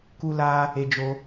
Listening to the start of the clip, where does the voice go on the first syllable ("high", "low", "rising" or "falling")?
high